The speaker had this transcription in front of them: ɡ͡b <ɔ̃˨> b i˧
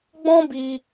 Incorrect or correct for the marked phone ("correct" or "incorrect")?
incorrect